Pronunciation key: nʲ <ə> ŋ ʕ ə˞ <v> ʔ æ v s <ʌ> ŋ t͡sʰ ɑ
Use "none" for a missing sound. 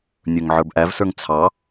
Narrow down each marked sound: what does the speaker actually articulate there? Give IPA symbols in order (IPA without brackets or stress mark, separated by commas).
ə˞, b, ə˞